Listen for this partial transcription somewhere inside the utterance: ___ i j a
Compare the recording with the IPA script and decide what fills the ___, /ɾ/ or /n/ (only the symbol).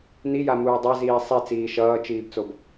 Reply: n